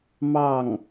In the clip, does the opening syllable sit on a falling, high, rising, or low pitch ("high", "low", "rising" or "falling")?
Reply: falling